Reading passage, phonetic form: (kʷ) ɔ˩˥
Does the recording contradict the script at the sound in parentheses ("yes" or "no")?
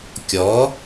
yes